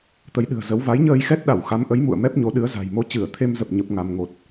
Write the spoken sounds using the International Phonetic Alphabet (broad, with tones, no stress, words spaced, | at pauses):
t̪ə˨˦jɗɨ̤˨˩ə̯zə˨˦w va˨˦jɲəː˧jxɛ˦˥t̚ɗa˧˩w xa˨˦mʔə˨˦jmṵ˧˨ə̯ mɛ˦˥p̚ɲo˨˦ ɗɨ˨˦ə̯za̤˨˩jmo˧ t͡ɕɨ˧˩ə̯t̪ʰe˧mzə˨˩p̚ ɲə˦˥p̚ŋa˧m ŋo˨˩t̚